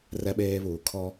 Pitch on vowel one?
high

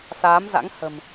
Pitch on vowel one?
rising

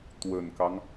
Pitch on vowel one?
low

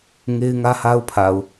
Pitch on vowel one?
high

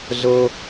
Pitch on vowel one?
high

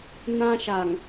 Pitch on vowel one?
high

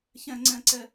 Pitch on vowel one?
high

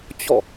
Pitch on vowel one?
falling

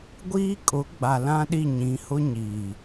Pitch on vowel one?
high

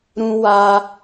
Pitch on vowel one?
high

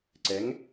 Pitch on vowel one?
rising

